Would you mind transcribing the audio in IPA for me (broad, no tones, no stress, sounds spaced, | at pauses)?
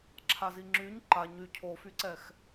ǁʰ a z i ŋ͡ǁ y ɲ ǃ a ɲ y cʰ o f y ǀ ɛ x